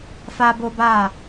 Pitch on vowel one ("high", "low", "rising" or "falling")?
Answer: high